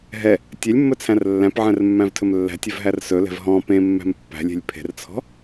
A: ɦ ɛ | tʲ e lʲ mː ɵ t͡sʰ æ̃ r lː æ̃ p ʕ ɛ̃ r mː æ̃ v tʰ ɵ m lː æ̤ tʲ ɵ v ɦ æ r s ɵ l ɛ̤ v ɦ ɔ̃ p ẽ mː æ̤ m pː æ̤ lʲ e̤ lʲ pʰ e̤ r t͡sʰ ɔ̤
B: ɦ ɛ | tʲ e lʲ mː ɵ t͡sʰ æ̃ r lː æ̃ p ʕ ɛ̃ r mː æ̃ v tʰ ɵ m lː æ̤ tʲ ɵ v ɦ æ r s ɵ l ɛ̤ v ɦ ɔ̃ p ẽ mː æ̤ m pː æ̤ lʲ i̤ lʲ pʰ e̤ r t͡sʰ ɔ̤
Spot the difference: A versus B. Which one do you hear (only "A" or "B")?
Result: A